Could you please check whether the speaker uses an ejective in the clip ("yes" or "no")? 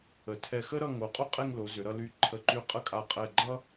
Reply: yes